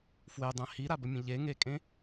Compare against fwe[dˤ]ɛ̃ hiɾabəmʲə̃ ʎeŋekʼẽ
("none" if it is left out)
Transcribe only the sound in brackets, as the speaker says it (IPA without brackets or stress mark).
dˤ